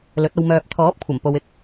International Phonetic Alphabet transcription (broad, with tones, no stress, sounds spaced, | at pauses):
l ɵ˨˥ t̚ ɐ˧ w m œː˨ p̚ t̪ʰ ɔː˨˥ p̚ kʷʰ ɐ˨˩ m p o˨ w ɪ˧ k̚